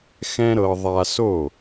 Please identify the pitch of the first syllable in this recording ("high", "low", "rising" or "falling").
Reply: high